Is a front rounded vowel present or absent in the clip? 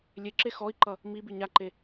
absent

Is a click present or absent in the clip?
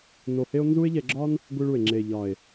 present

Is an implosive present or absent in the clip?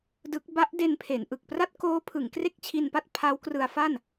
absent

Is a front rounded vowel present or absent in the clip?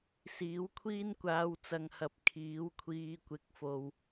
absent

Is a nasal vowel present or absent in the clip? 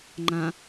present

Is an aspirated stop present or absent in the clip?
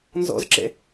absent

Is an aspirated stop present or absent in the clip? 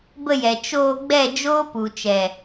absent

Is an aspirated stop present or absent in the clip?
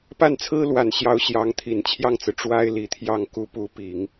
present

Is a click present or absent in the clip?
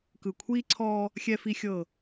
present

